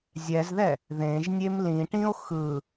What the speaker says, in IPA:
zʲ ɛ z ð ɛ | ð ẽ ʒ nʲ e m l ĩ ʈ ĩ o̯ x ɯ

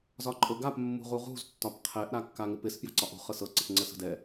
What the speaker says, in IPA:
z ɒ ǃʼ ɤ ɡ a p mː ṳ ʁ u ʁ ṳ z tː ɒ p qʰ ɛ ʔ ɾ a kː a ŋ ɪ p ɪ s p j a̤ ǀ ɒ ʔ ṳ χ ɤ s ɤ ǀ ɪ p ŋ͡ǀ ə s ə̤ d ɛ

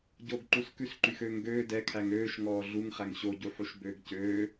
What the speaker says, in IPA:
ɟ o ɡ ǃ u s k ʉ s ǃ y x øː ŋ ɡ øː d ɛ kʰ æ ŋ øː ʃ ŋ ɔː ɮ u ŋ χ æ ŋ ɕ o ɟ u ħ u ʃ b øː ɡ c øː

